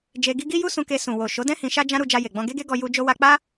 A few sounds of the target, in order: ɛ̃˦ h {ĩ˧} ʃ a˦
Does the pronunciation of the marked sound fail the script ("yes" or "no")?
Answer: no